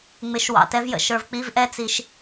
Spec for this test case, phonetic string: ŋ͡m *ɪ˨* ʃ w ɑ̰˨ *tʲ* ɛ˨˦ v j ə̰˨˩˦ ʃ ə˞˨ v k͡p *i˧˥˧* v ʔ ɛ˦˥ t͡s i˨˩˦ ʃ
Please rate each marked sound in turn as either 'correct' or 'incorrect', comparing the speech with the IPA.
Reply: incorrect: ɪ˨˩˦, incorrect: t, correct

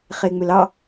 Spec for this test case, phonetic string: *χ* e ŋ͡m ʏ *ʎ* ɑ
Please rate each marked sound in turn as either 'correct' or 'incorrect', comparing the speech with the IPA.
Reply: correct, incorrect: l

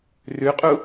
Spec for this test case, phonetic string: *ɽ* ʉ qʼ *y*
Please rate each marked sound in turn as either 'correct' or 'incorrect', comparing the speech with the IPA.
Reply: incorrect: r, incorrect: u

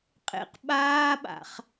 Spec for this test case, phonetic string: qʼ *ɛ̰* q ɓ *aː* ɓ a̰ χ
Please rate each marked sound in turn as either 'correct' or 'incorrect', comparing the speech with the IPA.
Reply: incorrect: ḛ, correct

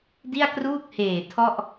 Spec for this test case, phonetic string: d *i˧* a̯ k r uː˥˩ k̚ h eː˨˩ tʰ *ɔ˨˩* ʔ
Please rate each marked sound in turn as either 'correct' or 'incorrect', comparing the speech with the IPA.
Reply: incorrect: i˥˩, incorrect: ɔ˥˩

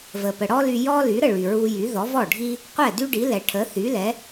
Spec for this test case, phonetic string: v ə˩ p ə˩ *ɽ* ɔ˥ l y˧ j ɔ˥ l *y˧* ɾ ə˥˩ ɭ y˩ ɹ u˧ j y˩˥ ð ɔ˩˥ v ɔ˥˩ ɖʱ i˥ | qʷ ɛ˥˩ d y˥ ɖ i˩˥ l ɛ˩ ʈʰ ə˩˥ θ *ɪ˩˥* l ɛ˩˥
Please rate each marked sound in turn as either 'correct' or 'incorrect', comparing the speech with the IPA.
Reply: correct, incorrect: y˩˥, incorrect: y˩˥

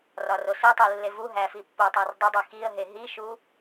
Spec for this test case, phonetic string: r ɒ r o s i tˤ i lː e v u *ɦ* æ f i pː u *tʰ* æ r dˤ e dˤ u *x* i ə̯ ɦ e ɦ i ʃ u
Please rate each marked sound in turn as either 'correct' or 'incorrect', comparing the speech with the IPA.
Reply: correct, incorrect: tˤ, correct

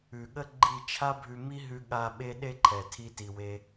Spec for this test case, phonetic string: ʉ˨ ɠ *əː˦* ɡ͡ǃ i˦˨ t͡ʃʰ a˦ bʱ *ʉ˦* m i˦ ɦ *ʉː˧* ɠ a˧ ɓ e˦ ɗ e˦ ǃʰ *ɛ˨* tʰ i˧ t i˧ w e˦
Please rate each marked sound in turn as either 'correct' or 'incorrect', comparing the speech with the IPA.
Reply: incorrect: ə˦, incorrect: ʉ˧, incorrect: ʉ˧, correct

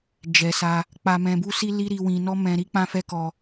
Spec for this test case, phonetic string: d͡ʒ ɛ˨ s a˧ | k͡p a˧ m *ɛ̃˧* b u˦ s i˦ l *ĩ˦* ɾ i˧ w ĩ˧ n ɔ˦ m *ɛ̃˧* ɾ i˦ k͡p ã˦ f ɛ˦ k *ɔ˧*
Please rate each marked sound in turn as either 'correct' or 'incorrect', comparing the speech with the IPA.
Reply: correct, incorrect: i˦, correct, correct

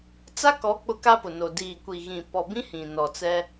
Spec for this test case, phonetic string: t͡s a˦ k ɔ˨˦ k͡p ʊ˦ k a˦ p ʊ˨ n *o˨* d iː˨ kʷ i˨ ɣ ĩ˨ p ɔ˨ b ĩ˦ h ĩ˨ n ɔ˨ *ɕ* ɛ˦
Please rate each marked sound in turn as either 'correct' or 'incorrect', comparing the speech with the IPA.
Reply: correct, incorrect: t͡s

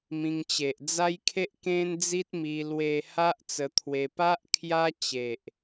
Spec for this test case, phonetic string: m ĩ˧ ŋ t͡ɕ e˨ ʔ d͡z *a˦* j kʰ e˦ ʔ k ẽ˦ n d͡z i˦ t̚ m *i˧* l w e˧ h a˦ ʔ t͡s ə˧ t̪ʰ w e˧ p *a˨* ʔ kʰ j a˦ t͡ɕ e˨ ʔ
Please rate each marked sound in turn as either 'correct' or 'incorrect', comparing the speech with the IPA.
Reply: correct, correct, incorrect: a˦

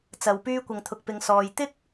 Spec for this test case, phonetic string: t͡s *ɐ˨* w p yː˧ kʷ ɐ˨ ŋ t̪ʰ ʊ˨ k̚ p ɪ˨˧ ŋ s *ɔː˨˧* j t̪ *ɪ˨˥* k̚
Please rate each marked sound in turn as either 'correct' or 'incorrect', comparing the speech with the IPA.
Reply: incorrect: ɐ˨˧, incorrect: ɔː˨, incorrect: ɪ˥

